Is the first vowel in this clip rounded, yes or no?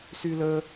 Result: yes